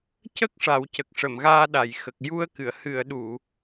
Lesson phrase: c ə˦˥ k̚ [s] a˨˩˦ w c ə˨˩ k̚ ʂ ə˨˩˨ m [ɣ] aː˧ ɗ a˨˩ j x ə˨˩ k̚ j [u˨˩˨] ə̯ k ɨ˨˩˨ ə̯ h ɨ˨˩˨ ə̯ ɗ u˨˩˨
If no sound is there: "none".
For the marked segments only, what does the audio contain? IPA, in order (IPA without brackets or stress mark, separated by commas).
ʂ, ɣ, u˧